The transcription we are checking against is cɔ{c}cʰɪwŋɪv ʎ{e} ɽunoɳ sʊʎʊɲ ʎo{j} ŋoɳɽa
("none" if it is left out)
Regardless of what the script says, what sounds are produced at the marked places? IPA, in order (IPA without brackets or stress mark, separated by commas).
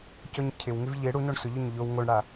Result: ɲ, e, w